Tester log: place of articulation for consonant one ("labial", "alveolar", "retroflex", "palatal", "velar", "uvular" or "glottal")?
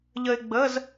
palatal